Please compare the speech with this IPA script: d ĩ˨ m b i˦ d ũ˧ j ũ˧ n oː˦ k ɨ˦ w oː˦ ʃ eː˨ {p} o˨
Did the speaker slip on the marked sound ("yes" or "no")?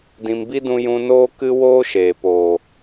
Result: no